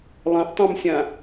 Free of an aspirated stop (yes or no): yes